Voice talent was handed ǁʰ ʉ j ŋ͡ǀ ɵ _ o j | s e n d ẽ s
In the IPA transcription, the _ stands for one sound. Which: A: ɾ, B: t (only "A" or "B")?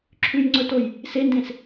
B